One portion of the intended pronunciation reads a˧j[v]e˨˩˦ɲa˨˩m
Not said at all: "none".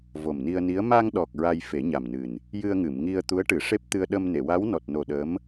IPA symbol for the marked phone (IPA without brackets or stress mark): f